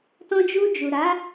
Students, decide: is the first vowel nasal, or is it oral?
nasal